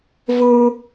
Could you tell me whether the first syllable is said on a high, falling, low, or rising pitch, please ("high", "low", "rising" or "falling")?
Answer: high